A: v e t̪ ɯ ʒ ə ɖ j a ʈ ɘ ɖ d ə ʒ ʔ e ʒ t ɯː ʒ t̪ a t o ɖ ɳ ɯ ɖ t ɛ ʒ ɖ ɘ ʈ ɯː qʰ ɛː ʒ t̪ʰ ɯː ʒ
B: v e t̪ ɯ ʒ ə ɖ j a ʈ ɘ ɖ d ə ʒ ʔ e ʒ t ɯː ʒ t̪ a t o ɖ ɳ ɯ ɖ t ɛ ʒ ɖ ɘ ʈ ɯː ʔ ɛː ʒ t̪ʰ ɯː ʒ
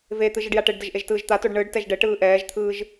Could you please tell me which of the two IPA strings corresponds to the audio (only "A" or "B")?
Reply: B